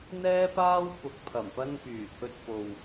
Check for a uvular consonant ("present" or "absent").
absent